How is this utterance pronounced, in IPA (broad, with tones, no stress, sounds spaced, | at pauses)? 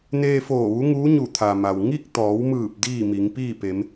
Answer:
n eː˧ f oː˧˩ ʋ u˧˥ ŋ uː˧˥ ɲ u˧˩ t̪ʰ a˩ m a˩ w ŋ i˥˨ k̚ t̪ ɔː˩˧ w m ɯː˧˩ p̚ d iː˥˨ m i˩˧ ŋ p iː˥˨ p e˩˧ m